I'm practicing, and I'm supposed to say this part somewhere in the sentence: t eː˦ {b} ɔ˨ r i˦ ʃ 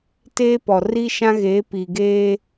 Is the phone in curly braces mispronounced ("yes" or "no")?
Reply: yes